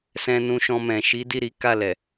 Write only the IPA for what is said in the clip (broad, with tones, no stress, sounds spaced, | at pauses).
s ɛ̃˧ n ũ˧ ʃ ɔ̃˧ m ɛ̃˨ ʃ i˨˦ d i˦˨ ɾ i˨˦ k a˦˨ l ɛ˨